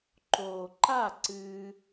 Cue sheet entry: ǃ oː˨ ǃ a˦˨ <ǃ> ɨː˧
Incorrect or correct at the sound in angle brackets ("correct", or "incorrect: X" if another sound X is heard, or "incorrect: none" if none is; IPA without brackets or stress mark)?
incorrect: ǀ